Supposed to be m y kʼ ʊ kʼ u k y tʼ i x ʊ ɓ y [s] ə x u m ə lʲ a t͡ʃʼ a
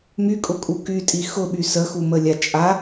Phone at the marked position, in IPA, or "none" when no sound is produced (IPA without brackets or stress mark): s